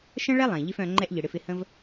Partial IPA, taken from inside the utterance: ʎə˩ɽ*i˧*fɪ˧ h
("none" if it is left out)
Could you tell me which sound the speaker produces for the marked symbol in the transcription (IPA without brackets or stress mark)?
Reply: ɪ˧